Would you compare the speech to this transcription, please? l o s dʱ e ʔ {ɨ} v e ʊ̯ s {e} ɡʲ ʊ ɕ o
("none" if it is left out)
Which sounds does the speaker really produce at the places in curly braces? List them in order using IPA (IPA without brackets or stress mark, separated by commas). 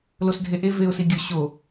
e, i